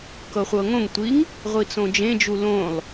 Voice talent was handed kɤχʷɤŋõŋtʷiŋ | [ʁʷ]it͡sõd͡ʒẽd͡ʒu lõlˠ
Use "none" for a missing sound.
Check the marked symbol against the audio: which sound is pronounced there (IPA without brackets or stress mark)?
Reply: ʁʷ